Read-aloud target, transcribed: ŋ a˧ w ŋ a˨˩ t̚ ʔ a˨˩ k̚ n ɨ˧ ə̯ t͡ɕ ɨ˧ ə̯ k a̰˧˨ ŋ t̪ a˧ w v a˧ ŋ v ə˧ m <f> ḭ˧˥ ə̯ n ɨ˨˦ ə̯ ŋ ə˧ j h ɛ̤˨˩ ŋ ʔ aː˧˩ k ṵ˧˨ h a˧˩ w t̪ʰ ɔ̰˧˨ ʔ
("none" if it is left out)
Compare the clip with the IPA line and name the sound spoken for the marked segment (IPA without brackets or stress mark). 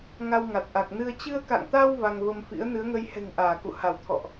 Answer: f